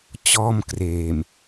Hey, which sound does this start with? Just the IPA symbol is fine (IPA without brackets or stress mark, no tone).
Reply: t͡ɕ